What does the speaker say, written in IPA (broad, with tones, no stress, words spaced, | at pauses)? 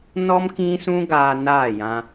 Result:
nɔ˦m kĩ˦ sũ˦ɡaː˧ naː˦˨jã˧